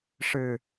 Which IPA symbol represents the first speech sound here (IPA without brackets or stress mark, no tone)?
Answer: ʂ